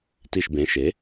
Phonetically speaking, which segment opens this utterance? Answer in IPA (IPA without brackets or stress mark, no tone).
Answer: t